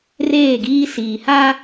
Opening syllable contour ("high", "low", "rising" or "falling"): falling